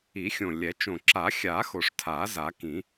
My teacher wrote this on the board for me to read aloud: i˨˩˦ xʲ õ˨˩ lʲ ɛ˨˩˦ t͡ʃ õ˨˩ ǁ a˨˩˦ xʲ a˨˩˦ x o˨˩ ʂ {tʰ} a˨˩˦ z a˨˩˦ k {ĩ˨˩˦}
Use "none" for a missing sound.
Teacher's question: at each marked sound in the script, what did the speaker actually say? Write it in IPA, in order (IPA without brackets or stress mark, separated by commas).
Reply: tʰ, ĩ˨˩˦